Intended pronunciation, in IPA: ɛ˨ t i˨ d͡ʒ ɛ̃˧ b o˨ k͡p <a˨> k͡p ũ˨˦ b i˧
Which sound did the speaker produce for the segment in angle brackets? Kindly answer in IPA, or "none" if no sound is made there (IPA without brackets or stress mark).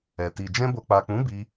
a˨